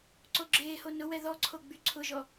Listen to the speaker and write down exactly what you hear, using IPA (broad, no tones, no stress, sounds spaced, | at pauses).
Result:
ǀ o ɡ͡ǁ eː h o n ʊ w ɛ ð ɔ ǀʰ o ɡ͡b y ǀʰ ʊ ʒ ɔ